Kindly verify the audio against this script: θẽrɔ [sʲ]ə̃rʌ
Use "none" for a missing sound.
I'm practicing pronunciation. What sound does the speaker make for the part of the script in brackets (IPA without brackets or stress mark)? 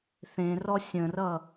sʲ